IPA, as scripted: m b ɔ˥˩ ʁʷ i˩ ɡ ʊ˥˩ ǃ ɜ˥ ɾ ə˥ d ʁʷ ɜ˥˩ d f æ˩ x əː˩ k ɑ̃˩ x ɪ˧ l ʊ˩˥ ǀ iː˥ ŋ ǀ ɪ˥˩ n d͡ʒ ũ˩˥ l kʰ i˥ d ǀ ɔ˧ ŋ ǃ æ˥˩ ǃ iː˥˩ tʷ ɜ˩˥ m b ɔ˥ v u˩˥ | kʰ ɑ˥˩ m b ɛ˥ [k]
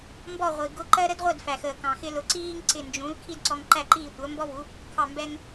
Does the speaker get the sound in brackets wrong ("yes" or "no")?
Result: yes